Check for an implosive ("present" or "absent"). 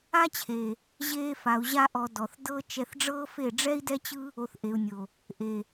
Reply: absent